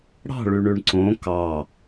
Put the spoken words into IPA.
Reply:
ɽ ɑ̤ ɭ y ɳ ʉ ɳ ǀ õ k ɑ

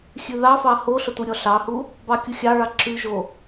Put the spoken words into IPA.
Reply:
xʲ ʉ ð ɑ f ɑ h o ɬ o t u ɾʲ ɔ ɬ ɑ h u | b ɑ kʲ u xʲ ɑ ɭ ɑ ǁ ʉ ʒ o

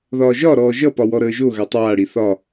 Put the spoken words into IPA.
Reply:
ð ɒː ʒ ɒ ɾ ɔː ʒ ʌ p ɒ w ɔ ɾ əː ʒ o ɣ a tˤ aː ɽ i θ ɒ

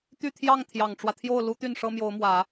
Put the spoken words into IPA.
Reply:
t̪ y˥˧ t̪ʰ j ɑ˥˩ ŋ t̪ʰ j ɑ˨˩ ŋ ʈ͡ʂ w ä˦ t̪ʰ j o˥˩ ʊ̯ l u˥ t̪ y˥˩ n ʂ ɤ˥ m j o˧˥ ʊ̯ m w ä˨˩˦

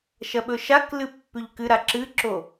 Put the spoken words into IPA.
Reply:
ʃ ɐ ɓ ɵ ʃ a k l ɨ pː ʉ ʎ k ɨ ɾ a ǁ ɨ ǁ o

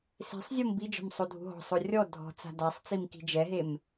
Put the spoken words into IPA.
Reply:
s e̤ sˤ zʲ o m b i d͡ʒ ɔ̤ m sˤ o dʱ ṳ ɦ ɔ̤ sˤ o rʲ ɔ dʱ ɔ̤ t͡s a̤ d a sˤ t͡s i m k i̤ d͡ʒ ɛ ɦ e m

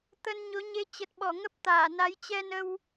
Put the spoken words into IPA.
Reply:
t̪ ə˧ n ɲ o˨˦ ɲ e˧ t͡ɕ ə˨˩ t̚ ɓ ɔ˧˩ ŋ ə˦˥ p̚ t̪ aː˧˩ n a˨˦ j t͡ɕ ɛ˧ n ə˧ w

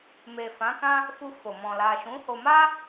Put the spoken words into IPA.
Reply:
m e˨ f ã˨˦ k ã˦ | f u˧ f o˨ m ɔ̃˨ l a˨ ʃ ũ˨˦ h o˧ m a˦

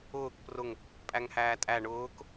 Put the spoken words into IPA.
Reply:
ʊː k p r ʊ ŋ | pʼ æ ŋ h æː tʼ æ ɳ ʊː k

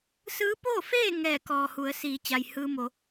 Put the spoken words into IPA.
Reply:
s ɯː˧˥ p oː˥˨ f eː˥˨ ŋ ɛː˧˩ k ɔː˩ h u˩˧ ə̯ s iː˩˧ t͡ɕ a˩ j h ɯː˧ m o˩˧

